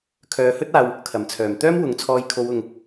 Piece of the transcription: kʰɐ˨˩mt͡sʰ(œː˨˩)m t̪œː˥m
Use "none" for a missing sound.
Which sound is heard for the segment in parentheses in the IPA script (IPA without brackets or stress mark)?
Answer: œː˨˩